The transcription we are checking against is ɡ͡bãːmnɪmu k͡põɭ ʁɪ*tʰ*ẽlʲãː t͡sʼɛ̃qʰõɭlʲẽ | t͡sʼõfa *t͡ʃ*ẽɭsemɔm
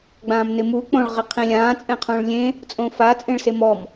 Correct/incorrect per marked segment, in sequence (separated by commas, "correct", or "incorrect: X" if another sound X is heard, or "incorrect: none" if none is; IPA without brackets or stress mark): incorrect: qʰ, incorrect: t͡sʼ